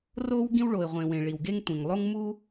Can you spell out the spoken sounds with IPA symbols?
r o˥ w ɡ ĩ˥ w ɭ o˩ ɪ̯ ʁʷ ẽ˩ w ẽ˩ ɭ i˩ w ɡ e˥ ŋ tʷ ẽ˩ ŋ lˠ o˥ ŋ m u˥

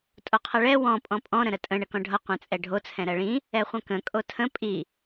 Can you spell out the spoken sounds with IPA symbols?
tʼ o qʰ ʌ ɭ ɛ w ɔ̃ pʼ ɔ̃ pʼ ɔ̃ ɾ ə̃ ɾ ə tʼ ə̃ ɳ ə k ɔ̃ ɖʱ ʌ qʷ ɛ̃ t͡sʼ ɛ ɖʱ o t͡sʰ ɛ̃ ɾ ɜ ɭ ĩ | ɛ χʷ ə̃ k ə̃ kʼ o tʰ ə̃ pʼ i

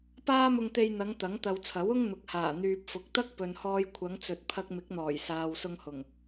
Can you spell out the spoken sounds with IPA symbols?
p aː˥ m ʊ˧ ŋ t̪ e˧ j n̪ ɐ˨˧ ŋ t̪ ɐ˨˥ ŋ t̪ ɐ˨ w t͡sʰ ɐ˨˥ w ʊ˥ ŋ n̪ ʊ˨˥ k̚ h aː˨˩ n̪ yː˨ p̚ f ʊ˨˥ k̚ t̪ ɐ˥ k̚ p ɵ˨ n h ɔː˧ j kʷʰ ɐ˨˧ ŋ t͡s ɵ˨ t̚ pʰ ɐ˧ k̚ m ɪ˨˥ k̚ n̪ ɔː˨˩ j s aː˨ w s ʊ˧ ŋ h ʊ˨˩ ŋ

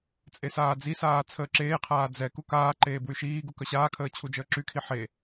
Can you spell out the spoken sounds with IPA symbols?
t͡sʼ e s aː d͡z i s aː t͡sʰ əː ǁ eː qʰ aː d͡z ɛ k u k aː ǃ eː b w y ʃ iː ɡ u k œ ɕ aː kʰ əː t͡ɕʰ u d͡ʒ əː ǁ y kʰ i ħ e

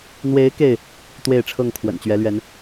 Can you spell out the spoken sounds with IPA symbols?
n̪ w e˨˦ ɪ̯ k e˥˨ ɪ̯ | t̪ w e˥˨ ɪ̯ ʈ͡ʂʰ ɤ˥˨ ŋ kʰ w ə̰˨˩ n t͡ɕ ɥ ɛ˨˦ l ɥ ɛ˨˦ n

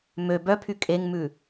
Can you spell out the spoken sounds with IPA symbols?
m ø b œ pʰ y kʼ e ŋ m ʉ

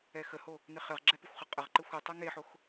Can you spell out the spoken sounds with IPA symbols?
ɛ x ə h o | n ɪ χ ɘ ʁ ɡ͡ǁ ɛ p ɪ xʷ χ ə qʼ ə ʁ ǃ ɘ xʷ ɯ tˤ o ŋ e ħ o x

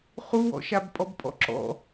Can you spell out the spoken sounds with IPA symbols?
χ u w ɔ̰ ʃ a b pʼ ɔ b pʼ ɔ̰ ǁ ɔ̰

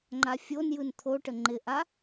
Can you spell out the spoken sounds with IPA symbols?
ŋ͡ǃ a fʲ o n j ɯ n t̪ʰ o ʈ ə ŋ͡ǃ ɪ ʔ a

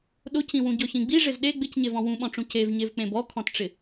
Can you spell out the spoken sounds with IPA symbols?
ɗ ʊ c ĩ w ũ ɟ ɔ ç ĩ ɡ͡b i ʐ ɪ z ɗ e ɡ͡b ɪ c ɲ e v ɔ̃ w ũ ɓ ɔ̃ ʈ͡ʂ ũ c e v ɲ e v k͡p ẽ b ɔ kʰ ɔ̃ t ʈ͡ʂ ɪ

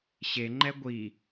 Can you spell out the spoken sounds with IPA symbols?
ɕ e ŋ͡ǃ ɛ ɡʷ i

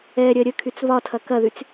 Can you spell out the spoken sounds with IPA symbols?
ɛ ɾʲ ɜ ɾʲ ə kʰ y t͡s β ɒ tʰ ɐ k ɐ ð y t͡s

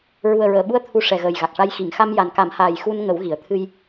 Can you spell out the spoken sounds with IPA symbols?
ɹ u˨˩ ə̯ ɹ əː˨˩˨ ɓ u˧˥ ə̯ t̪ʰ u˧ ʂ ɛ˨˩ ɣ əː˨˩ j ɣ a˨˩ k̚ ʂ a˧ j x i˨˩˨ ŋ x a˧ m j a˨˩ n k a˨˩˦ m h aː˨˩ j x u˧ n ŋ ə˨˩˦ w ɣ i˨˩˨ ə̯ t̪ʰ ɨ˧ j

